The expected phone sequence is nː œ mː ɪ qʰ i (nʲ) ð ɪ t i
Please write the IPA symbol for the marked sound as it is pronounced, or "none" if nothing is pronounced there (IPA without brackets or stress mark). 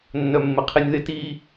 nʲ